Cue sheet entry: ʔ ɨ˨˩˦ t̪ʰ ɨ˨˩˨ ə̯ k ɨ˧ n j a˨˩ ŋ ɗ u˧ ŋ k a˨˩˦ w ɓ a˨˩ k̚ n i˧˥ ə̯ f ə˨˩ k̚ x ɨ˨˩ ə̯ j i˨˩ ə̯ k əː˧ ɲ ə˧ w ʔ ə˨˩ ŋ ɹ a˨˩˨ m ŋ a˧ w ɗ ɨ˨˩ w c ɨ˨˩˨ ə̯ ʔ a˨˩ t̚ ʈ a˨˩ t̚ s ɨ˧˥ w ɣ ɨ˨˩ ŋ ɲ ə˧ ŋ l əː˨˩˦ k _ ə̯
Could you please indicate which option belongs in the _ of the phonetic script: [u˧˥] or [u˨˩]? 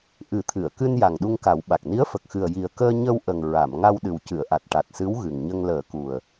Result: u˨˩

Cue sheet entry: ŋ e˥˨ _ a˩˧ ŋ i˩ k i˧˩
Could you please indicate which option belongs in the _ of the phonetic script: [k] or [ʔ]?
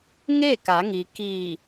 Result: k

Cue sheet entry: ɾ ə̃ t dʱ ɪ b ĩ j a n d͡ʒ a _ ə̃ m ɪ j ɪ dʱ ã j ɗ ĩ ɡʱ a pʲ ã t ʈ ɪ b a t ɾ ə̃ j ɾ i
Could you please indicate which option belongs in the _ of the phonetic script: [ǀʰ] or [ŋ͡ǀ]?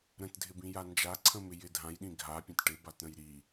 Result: ǀʰ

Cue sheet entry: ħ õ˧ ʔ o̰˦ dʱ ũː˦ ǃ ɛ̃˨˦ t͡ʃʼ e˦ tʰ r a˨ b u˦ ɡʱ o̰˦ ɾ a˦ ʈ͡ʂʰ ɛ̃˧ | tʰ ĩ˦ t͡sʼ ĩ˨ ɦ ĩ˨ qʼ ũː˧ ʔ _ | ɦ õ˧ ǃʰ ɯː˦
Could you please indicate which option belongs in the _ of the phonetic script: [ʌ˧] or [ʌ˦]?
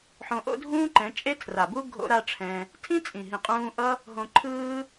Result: ʌ˦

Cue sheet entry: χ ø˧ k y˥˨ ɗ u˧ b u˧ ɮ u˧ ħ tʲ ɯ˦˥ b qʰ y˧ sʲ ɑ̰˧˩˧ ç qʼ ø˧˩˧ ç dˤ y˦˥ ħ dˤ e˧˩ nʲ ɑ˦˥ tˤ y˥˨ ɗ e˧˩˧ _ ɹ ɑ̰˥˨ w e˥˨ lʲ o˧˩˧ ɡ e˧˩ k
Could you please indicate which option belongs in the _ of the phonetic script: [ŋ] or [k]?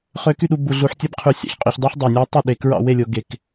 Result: k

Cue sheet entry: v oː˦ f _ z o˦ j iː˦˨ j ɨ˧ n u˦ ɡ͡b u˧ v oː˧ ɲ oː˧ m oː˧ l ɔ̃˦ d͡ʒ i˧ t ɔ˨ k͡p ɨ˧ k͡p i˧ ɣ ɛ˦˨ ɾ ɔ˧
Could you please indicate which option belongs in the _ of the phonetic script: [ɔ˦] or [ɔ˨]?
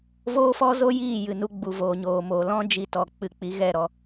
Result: ɔ˦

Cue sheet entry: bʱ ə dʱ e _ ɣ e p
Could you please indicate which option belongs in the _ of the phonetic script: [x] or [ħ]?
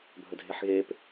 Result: ħ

